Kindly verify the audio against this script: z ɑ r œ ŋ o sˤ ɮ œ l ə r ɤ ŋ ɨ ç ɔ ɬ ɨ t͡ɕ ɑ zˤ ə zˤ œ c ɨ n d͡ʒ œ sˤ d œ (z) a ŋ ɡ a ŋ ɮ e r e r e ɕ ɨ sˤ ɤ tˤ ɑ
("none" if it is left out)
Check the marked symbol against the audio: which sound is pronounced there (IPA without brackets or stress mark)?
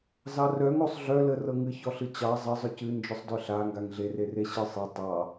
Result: ɬ